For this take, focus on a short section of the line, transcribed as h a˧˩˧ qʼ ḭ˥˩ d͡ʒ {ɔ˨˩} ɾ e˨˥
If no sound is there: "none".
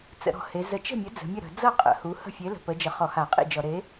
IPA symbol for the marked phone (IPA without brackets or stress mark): ɔ˧˩˧